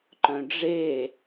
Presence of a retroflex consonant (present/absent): present